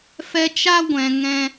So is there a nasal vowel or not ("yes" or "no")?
yes